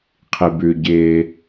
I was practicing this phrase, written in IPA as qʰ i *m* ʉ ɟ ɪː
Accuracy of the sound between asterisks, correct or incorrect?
incorrect